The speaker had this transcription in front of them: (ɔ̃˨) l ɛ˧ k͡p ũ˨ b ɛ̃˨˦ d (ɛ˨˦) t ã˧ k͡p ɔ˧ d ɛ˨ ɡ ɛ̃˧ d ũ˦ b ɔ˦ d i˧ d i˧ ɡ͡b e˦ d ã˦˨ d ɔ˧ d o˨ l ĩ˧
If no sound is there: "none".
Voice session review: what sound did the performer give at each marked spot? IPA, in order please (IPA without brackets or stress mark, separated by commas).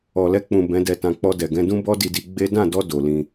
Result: ɔ˨, ɛ˧